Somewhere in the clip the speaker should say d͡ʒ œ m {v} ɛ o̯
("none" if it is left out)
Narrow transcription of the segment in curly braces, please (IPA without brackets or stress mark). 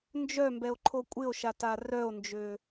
b